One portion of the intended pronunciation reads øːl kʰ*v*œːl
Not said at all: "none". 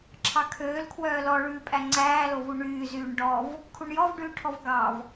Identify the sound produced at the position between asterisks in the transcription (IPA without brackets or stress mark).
w